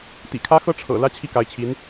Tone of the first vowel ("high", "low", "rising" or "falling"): low